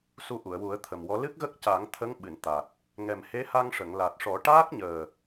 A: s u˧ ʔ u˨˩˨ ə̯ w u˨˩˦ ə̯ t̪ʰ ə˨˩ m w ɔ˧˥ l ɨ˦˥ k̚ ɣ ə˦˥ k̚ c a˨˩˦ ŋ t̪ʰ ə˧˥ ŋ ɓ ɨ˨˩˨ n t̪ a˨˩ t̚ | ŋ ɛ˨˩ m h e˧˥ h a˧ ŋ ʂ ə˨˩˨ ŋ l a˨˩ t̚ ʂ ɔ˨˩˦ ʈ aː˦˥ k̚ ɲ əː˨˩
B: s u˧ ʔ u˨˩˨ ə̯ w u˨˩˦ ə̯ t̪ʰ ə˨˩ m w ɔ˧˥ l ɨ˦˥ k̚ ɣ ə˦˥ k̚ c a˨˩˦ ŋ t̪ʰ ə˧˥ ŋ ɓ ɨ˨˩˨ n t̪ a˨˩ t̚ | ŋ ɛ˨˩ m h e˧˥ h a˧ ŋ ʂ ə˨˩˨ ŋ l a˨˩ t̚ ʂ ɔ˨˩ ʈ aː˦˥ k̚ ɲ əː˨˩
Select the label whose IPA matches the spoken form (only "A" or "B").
A